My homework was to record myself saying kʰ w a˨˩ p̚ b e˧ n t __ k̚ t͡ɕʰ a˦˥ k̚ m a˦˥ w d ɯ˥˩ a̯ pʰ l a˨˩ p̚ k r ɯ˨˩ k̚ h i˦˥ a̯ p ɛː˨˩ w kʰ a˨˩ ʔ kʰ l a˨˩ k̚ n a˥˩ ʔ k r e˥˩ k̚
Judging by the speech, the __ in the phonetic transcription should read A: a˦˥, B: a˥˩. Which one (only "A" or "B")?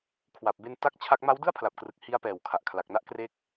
B